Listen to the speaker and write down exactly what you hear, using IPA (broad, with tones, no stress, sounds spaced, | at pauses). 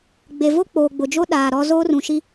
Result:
ɡ͡b e˨ v o˦ k͡p oː˨ ɡ͡b ʊ˨ d͡ʒ o˦ ɗ aː˨ ɾ ɔ˦ z oː˦ r ũ˨ ʃ i˦